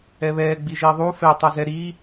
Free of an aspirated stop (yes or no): yes